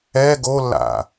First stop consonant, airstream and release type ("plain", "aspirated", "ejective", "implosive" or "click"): plain